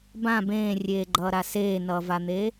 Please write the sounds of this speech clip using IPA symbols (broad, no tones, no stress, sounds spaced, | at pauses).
b ã b ẽː rʲ eː ɡ͡ǃ ʌː ɾ a s eː n ʌː v a n̪ eː